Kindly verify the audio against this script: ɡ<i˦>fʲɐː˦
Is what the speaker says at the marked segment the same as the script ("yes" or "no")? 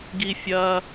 yes